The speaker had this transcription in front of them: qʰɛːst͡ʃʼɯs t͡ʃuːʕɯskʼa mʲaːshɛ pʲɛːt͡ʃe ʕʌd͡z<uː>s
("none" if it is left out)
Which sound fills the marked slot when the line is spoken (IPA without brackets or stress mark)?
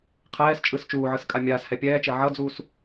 uː